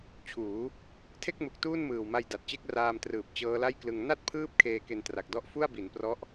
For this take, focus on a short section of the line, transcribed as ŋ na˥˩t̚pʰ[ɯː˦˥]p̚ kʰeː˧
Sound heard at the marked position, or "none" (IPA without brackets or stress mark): ɯː˦˥